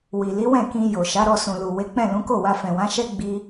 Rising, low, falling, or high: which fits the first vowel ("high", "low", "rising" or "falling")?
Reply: low